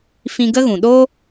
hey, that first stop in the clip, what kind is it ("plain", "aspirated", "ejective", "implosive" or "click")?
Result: plain